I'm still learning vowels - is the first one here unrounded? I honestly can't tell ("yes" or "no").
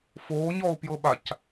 no